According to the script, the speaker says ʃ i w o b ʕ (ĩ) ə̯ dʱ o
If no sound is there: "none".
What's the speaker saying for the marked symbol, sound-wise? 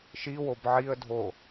i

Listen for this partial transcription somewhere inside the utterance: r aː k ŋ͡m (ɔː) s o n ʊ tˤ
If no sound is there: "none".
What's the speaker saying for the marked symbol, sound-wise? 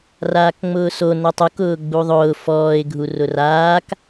ʊː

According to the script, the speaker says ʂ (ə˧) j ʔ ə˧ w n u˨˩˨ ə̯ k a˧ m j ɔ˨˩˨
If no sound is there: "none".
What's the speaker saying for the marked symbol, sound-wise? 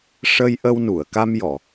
ə˧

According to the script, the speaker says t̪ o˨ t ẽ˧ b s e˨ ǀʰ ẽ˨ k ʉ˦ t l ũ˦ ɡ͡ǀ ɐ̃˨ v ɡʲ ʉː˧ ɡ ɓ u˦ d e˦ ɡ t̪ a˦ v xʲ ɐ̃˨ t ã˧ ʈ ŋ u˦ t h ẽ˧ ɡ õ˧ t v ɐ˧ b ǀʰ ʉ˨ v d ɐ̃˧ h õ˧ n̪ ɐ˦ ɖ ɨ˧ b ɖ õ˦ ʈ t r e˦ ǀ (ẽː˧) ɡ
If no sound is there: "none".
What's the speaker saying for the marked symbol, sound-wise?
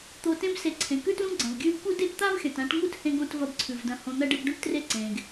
ẽː˧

